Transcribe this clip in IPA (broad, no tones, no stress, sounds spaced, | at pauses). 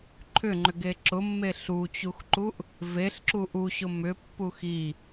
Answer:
ǃʰ ʏ ŋ͡ǃ ʏ ɡ e ǁ ʊ mː e ɬ u t͡ɕ u x ǃ u ʔ | v e ɬ ǁ u ʔ u ɕ ʊ m ʏ pː u x i